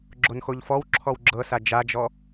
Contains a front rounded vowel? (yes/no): no